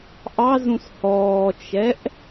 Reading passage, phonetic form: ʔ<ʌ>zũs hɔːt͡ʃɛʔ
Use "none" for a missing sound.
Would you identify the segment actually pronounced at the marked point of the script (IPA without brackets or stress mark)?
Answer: ɑ